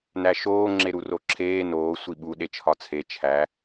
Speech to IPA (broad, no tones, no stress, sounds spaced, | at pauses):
n æ ʃ oː ŋ͡ǁ e ɾ u r o ǁʰ eː n oː sʷ i ɓ u ɗ e t͡ʃʰ ɒ t͡sʰ e t͡ʃʰ æ